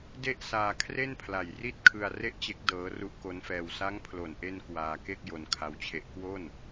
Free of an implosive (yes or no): yes